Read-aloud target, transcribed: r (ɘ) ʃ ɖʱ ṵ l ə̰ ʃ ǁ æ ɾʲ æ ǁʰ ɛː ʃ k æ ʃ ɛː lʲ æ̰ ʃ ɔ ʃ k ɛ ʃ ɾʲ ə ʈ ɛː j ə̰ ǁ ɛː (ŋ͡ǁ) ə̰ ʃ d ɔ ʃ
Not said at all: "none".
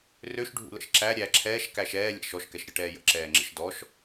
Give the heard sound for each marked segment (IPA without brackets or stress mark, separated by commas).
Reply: ø, ŋ͡ǁ